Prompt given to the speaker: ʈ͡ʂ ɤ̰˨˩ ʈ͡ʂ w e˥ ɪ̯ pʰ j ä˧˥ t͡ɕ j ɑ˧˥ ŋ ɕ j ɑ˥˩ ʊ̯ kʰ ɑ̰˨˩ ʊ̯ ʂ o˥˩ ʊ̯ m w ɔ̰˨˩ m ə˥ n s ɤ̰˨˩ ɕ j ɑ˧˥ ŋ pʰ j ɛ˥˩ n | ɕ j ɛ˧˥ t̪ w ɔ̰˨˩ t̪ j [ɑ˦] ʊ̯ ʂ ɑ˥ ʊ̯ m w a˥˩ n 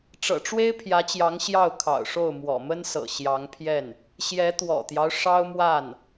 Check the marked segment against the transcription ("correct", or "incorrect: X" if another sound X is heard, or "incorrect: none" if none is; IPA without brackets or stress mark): correct